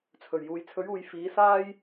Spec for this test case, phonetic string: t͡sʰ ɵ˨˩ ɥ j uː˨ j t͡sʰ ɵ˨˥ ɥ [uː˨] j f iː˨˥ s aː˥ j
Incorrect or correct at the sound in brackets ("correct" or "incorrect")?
correct